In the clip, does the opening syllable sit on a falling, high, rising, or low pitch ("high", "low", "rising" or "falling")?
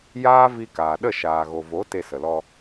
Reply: high